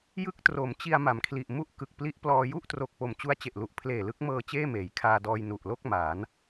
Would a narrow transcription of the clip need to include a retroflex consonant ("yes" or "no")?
no